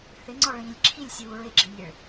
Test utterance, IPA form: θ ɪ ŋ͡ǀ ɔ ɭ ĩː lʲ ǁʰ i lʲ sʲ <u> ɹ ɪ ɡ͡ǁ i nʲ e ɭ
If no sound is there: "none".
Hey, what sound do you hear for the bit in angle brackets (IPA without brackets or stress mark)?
uː